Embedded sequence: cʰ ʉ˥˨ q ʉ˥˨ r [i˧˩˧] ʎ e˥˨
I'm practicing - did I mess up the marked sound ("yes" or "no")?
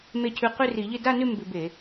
no